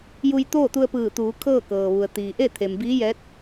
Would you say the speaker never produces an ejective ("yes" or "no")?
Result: yes